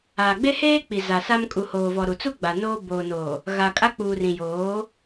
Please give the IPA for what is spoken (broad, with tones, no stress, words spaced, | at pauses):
aː˨ɡ͡be˦heː˦k͡pi˨ za˨sa˦m kʼu˨hoː˨vɔ˨ ɾu˨t͡su˦ ɡ͡ba˨noː˦ boː˨noː˨ | ɣa˨kʼa˦k͡puː˨rĩ˨ joː˨˦